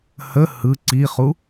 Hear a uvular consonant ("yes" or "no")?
yes